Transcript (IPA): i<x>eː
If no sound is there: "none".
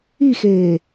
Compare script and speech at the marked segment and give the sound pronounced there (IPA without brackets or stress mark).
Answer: x